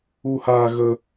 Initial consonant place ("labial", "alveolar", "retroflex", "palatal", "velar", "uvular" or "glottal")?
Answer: glottal